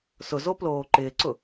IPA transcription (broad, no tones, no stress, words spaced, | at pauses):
sʊzo ploːǃɪːǀʊ